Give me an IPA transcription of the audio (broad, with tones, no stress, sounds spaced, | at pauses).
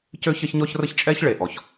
c ø˥ ç ɐ˥ ç ɲ ɔ˥ ç r ə˥ ç t͡ʃʼ ɛ˥ ç ɭ e˩ ʔ ɔ˩ ç